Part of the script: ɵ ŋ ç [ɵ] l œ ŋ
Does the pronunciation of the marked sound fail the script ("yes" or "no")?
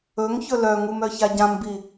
no